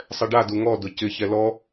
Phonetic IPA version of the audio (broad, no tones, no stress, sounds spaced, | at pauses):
sˤ ɛ ɖ a d u ŋ ɔ d ʊ c ɪ ç ɛ l ɔ